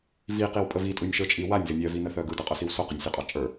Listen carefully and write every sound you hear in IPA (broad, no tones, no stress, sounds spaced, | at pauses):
v i q i w pʼ ə v i tʼ ɯ nʲ ʃ ə˞ t͡ʃʼ i w a nʲ z ə nʲ œ v i n ə θ œ ɡ ɯ d ə qʼ œ s i w s o q ə nʲ sʲ œ qʼ ɑ t͡ʃʼ ə˞